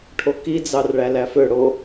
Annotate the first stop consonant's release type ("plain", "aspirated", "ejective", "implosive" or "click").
aspirated